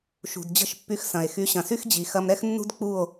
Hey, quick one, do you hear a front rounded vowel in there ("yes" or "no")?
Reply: yes